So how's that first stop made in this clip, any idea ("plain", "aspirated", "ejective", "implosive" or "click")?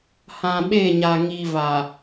implosive